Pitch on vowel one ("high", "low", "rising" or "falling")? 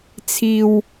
low